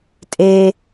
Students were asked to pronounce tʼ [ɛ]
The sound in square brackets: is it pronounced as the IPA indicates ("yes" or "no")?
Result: no